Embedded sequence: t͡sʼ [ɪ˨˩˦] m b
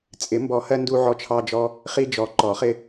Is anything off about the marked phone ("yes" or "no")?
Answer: no